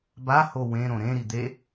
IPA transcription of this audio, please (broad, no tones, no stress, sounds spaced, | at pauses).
b a h o w ẽ ɾ õ ɾ ẽ ɾ i d̪ e